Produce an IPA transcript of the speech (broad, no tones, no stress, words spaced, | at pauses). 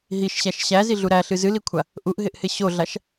ɦiʃɕæʃ ɕæziɮu ɾæɬɨ zɨlikʷʰa | ʔuʔɦɪʔhɪ ɕoɮaʃ